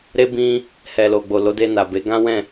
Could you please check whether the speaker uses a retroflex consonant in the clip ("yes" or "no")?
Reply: no